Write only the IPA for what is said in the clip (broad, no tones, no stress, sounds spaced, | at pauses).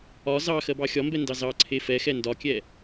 ɒ z ɑ x ɜ b ɑ xʲ ɒ m b ɛ n d ɑ z ɑ ǀʰ e f ɛ x ɛ n d ɒ kʲ ɛ